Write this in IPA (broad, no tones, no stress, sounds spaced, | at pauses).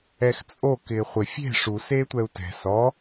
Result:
ɛ x t͡sʼ o k ɪː χʷ ɪ fʲ e̤ ʂ u s eː tʷ ɛ u̯ t ɛ̤ s ɔ